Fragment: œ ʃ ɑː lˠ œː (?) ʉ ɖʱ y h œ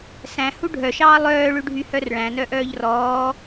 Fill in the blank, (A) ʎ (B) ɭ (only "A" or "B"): B